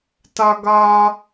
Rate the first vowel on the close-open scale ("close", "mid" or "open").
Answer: open